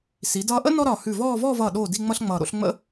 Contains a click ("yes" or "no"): no